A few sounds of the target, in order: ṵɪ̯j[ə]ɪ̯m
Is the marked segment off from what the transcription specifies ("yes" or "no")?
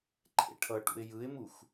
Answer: yes